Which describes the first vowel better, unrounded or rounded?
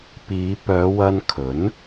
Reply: unrounded